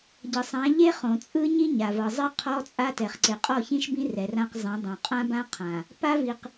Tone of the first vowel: low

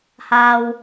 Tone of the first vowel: low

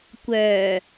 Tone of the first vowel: low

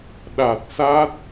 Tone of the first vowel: low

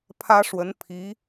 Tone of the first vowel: high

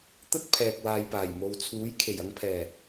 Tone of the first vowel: high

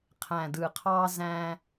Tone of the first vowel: low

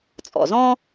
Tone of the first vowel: low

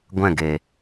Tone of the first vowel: falling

